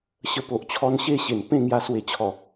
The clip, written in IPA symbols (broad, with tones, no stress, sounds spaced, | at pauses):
ɕ ə˧ p o˨ ʔ t͡ɕʰ ɔ˧ n ɕ e˥˧ ɕ e˨˩ n p ẽ˥˧ ŋ j a˧ s w e˨˩ t͡ɕʰ ɔ˨˩